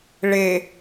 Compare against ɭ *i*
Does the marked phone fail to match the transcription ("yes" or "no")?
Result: yes